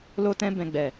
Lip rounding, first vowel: rounded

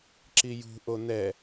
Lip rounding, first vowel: unrounded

